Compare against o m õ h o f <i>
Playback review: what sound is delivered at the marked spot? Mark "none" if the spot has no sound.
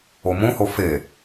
e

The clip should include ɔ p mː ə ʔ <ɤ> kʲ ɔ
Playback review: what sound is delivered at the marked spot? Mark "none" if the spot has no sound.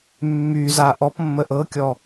ɤ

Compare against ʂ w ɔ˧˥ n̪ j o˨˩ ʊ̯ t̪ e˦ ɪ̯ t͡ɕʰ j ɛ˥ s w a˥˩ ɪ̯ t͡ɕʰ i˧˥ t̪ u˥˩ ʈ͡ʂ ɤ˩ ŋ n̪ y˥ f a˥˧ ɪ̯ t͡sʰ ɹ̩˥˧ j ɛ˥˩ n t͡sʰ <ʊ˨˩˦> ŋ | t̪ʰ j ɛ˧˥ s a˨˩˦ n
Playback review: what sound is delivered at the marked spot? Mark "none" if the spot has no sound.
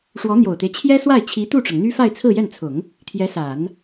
ʊ˨˩˦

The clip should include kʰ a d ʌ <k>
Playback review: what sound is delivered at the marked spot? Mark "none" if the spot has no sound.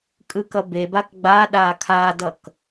k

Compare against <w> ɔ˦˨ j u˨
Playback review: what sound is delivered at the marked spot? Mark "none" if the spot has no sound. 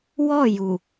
w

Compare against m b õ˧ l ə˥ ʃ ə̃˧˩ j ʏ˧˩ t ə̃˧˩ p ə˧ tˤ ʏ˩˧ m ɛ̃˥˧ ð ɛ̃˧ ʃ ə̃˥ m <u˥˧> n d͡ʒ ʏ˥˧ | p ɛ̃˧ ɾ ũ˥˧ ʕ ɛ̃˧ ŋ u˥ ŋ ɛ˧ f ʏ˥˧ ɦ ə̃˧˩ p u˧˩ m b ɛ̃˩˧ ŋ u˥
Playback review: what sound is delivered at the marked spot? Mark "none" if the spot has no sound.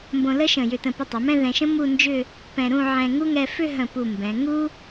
u˥˧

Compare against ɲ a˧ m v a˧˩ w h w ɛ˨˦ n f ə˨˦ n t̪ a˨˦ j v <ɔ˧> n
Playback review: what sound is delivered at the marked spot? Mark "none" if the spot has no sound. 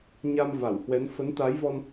ɔ˧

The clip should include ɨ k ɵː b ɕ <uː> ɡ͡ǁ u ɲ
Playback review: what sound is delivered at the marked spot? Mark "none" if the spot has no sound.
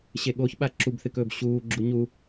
uː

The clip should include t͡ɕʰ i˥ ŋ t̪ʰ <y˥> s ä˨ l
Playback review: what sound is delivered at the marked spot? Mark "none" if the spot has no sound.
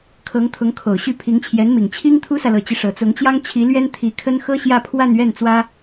u˥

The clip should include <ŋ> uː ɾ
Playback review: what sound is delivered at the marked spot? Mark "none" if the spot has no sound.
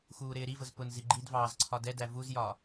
x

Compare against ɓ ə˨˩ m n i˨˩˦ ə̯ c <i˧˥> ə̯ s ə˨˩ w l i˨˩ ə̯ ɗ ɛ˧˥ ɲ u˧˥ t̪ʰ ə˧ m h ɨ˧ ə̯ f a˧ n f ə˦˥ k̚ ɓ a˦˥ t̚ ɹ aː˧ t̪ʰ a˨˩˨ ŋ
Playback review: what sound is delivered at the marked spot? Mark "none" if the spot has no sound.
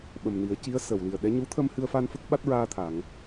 i˧˥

